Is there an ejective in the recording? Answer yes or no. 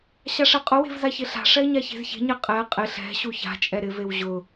yes